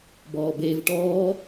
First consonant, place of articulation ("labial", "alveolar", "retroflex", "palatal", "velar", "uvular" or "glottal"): labial